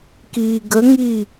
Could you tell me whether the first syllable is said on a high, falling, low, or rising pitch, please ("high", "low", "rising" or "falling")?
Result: low